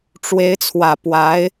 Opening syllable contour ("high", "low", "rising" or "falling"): rising